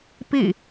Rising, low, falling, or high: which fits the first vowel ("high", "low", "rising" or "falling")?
falling